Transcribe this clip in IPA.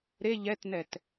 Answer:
ɾ e ʎ ɛ t n ɛ t

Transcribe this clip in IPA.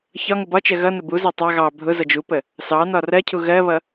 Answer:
ç ɒ ŋ ʊ b ɒ t͡ʃ ɜ ɣ ʌ n ə b u z ɑ tˤ ɑ ɣ ɑ bʱ ʊ z ʌ d͡ʒ u p ə | s ɑ n ɒ r ɜ cʰ u ɣ ɜ β ʌ

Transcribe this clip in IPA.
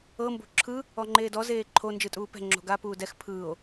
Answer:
ɤ m b o̤ ǁʰ ɯ | ɔ ŋ͡ǃ eː d ɔ z eː ǃʰ o n d͡ʒ ɯ tʼ uː p ɛ̤ ŋ͡ǁ o̤ ɡ a p uː d ɛ x pʰ ɯː o̯

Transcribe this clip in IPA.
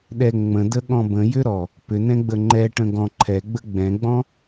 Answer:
ɗ ɛ ŋ͡m ə̃ d ə ɠ ɔ̃ b ə̃ j ʏ ɾ ɔ | p ʏ n ɛ̃ ɡ͡b ə ŋ͡ǃ ɛ ʈ ə̃ ɡ ɔ̃ ǃʰ ɛ ɡ͡b ə ɡ͡b ɛ̃ ɡ͡b ɔ̃

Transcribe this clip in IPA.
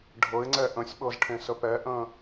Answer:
ɖʱ ɤ ɪ̯ ŋ͡ǀ ɛ ʔ ə̃ sʲ ɓ ɤ z ʈʰ ẽ s ə p ɛ ʔ ə̃

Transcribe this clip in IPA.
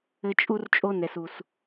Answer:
ɘ˦ t͡ʃʼ u˦ r t͡ʃʼ o˦ n ɛ˨ s u˨ s

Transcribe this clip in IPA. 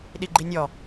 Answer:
ɗ i ɡ͡ǃ i nʲ ɔ

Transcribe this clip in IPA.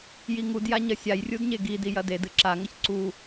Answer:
j i ŋ u d j a ɲ ɐ sʲ a j rʲ u d ɲ e ɡ i d i j ɐ d e d ɨ ǁ a ŋ ɐ ç ǀ u

